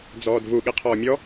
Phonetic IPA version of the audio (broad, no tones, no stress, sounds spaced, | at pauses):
d͡z ɔː d v u ɠ i qʰ ɔː mʲ ɔ